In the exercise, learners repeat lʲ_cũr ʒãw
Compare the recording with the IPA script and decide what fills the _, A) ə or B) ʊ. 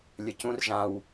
A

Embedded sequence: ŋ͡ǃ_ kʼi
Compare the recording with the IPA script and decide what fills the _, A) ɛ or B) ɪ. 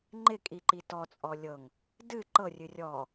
B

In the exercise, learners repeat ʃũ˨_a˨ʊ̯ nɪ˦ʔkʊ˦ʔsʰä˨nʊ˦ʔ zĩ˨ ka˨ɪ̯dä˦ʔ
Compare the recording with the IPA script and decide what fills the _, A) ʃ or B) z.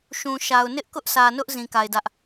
A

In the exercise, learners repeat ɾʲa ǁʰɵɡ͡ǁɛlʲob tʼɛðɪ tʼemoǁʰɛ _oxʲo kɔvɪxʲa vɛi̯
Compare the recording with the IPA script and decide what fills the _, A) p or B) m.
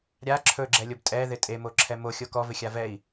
B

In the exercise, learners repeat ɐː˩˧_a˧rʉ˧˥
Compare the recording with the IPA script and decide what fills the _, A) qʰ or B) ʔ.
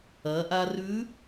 B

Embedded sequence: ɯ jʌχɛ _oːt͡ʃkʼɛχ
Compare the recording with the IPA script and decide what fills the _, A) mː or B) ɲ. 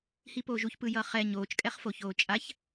B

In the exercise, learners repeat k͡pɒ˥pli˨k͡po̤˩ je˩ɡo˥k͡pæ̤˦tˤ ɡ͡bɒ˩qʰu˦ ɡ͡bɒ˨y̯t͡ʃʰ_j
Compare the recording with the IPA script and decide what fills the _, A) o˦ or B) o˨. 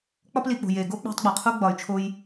A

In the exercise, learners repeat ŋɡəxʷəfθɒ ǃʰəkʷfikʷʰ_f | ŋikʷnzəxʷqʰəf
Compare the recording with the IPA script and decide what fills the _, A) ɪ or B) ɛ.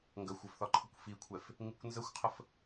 B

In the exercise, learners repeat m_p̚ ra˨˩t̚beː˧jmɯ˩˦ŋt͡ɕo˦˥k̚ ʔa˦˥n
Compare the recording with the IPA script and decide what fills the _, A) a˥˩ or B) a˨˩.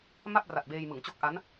A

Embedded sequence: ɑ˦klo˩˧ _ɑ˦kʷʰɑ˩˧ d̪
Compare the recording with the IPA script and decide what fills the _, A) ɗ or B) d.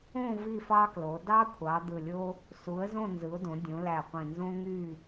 B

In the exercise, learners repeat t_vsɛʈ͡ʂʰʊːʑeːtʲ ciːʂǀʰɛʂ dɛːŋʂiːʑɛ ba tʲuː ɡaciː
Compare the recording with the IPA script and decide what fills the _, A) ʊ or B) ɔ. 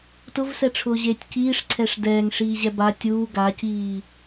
A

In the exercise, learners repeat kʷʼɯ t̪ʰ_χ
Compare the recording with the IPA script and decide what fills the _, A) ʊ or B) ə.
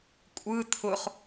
A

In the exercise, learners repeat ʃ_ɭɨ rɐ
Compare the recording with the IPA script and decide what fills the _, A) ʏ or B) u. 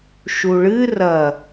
B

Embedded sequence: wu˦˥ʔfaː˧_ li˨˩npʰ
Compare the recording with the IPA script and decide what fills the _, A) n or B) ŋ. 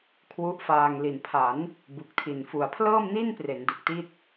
B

